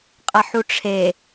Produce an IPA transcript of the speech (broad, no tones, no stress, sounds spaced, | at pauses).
qʼ ɐ ħ u ʈ͡ʂʰ e